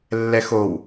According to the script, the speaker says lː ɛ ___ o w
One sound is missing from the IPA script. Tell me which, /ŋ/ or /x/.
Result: x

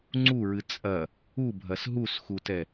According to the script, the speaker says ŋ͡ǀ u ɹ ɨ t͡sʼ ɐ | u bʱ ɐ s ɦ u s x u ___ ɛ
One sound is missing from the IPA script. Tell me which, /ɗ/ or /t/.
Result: t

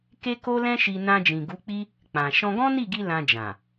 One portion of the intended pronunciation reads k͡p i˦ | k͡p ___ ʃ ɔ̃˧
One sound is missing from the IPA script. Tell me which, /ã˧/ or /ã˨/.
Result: ã˨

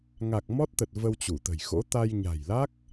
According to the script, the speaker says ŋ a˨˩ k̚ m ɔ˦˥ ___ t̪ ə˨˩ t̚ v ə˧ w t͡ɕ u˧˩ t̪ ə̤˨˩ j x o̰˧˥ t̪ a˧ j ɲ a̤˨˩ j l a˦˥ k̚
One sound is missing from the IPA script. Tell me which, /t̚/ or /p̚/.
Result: t̚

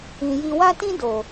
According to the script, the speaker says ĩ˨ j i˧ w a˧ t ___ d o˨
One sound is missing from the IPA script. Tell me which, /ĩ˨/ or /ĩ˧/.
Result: ĩ˧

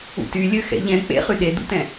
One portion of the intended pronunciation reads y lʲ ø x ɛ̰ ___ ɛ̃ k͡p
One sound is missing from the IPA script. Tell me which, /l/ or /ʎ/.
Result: ʎ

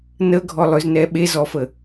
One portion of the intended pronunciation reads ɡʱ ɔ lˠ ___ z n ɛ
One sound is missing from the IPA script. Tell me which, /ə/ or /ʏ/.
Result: ʏ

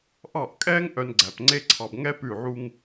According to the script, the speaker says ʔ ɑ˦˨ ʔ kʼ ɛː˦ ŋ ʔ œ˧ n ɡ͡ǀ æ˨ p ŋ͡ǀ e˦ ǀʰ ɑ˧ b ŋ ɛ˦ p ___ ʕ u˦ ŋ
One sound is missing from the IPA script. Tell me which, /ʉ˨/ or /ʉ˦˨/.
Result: ʉ˦˨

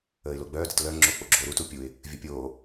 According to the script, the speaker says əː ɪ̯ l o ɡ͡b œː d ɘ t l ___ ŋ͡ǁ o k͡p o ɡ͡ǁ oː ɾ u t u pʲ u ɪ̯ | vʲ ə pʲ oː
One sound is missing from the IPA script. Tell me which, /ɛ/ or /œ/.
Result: œ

